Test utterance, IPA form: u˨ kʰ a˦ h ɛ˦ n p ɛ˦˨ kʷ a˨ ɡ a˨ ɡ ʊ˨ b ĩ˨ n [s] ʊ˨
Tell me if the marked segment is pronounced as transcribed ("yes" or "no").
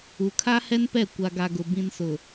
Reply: yes